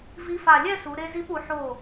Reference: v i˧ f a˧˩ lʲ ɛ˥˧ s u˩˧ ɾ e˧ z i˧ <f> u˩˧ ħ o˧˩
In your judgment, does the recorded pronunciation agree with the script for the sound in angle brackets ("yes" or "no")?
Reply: no